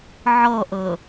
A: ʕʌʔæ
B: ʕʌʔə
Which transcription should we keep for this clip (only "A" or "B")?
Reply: B